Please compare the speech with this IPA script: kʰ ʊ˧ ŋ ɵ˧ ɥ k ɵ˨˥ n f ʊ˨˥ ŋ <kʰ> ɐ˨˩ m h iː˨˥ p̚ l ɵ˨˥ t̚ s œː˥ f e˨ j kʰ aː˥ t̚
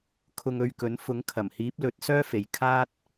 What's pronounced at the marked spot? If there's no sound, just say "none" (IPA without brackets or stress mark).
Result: kʰ